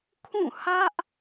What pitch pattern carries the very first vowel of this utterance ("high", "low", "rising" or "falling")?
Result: falling